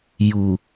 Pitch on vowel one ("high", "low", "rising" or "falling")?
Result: low